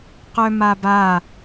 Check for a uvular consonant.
present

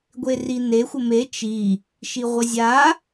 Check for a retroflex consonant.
absent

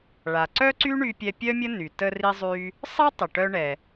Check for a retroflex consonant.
present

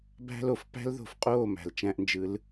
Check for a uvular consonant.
present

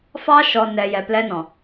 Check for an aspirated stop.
absent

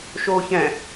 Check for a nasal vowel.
present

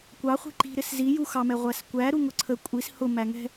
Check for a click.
present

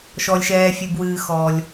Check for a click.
absent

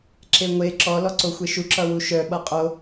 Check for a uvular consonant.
present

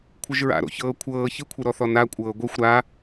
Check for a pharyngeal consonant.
absent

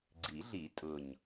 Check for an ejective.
present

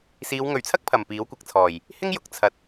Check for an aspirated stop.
present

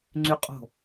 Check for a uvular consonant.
present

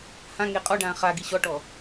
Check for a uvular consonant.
present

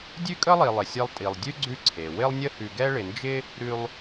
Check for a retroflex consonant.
present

